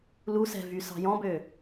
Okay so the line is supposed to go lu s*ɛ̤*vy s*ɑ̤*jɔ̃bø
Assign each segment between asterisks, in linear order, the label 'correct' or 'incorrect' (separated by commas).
correct, correct